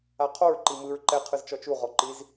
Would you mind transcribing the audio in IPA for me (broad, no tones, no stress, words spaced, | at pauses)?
aqʰoɹ ǃimɯɹ ǃɛ qʰɯzt͡ʃɔt͡ʃu ʁɔǃiz